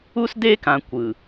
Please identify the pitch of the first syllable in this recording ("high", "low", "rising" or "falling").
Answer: high